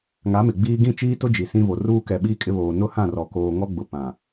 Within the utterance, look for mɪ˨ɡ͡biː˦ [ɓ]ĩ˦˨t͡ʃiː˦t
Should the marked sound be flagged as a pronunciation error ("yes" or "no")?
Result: yes